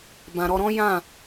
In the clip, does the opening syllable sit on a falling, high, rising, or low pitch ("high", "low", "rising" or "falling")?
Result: low